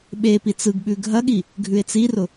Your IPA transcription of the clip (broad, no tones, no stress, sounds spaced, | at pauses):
ɓ e p i t͡s ɯ ɡ ɓ ʉ ɡʱ ɐ ɠ i | ɡʱ ʉ e̯ t͡s i r ʊ